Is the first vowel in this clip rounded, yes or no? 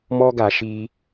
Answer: yes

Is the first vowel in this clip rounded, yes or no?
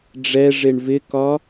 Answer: no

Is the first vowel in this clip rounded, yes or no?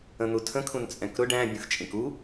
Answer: no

